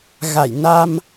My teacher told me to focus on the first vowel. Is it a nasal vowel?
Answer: no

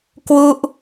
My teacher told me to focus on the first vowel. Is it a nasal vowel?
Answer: no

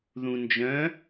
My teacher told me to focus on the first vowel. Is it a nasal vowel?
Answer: yes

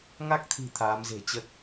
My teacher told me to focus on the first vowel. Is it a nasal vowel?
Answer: no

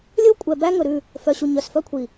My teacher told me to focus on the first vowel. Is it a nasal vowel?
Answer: no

